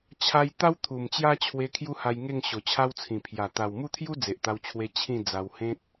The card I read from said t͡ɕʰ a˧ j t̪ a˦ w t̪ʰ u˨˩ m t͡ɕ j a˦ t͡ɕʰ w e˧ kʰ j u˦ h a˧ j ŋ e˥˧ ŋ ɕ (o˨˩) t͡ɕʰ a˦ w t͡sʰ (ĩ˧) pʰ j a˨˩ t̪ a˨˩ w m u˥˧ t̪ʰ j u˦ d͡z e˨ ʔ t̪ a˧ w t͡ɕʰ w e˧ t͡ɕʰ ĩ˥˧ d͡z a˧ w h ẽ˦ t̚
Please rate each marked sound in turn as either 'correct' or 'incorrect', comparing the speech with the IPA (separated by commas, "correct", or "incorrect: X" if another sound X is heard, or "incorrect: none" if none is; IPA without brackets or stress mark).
correct, incorrect: ĩ˨˩